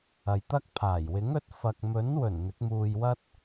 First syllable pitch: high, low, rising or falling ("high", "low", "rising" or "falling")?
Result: low